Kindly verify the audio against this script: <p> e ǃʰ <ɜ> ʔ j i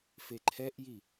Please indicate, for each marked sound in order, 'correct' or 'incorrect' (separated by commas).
incorrect, incorrect